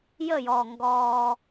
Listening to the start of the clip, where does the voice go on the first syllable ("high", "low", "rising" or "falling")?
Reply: falling